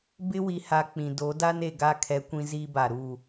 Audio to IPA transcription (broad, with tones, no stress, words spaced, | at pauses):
bɪ˦wi˨ha˨ k͡pĩ˨do˨˦da˦n e˨ɡa˦˨ kʰɛ˦kʷĩ˦ziː˦ba˨ ɾuː˦˨